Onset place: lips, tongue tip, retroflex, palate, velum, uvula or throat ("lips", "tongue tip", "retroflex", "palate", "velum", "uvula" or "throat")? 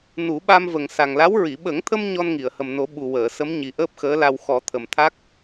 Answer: tongue tip